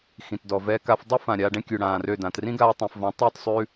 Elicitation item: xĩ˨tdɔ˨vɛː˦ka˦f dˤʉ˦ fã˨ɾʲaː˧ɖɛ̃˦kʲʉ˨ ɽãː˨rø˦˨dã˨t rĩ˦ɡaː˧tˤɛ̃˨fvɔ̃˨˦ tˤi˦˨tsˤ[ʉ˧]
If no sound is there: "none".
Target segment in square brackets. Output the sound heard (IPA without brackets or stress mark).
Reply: ʉ˧